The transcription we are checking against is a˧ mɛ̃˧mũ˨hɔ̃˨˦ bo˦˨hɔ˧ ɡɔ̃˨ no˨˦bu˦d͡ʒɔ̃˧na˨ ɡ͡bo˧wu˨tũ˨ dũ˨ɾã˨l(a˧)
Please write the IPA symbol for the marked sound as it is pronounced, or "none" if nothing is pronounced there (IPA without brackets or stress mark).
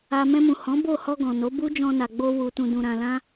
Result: ã˧